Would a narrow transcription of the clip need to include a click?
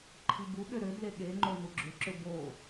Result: yes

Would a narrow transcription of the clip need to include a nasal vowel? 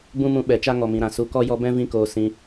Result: yes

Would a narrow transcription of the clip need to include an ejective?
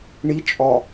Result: yes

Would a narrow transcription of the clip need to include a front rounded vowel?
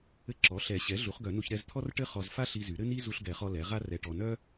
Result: yes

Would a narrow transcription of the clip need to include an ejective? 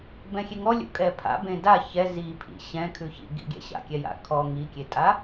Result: yes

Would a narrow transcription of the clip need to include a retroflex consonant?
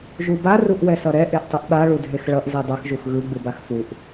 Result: yes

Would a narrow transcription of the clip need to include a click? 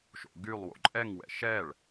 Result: yes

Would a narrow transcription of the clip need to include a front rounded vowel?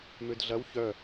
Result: yes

